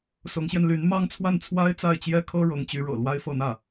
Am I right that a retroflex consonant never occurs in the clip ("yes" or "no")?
no